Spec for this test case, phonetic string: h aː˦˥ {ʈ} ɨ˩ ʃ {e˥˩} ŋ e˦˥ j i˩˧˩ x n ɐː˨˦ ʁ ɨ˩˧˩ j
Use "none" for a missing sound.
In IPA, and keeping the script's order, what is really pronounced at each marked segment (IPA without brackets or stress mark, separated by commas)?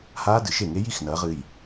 d, e˥˩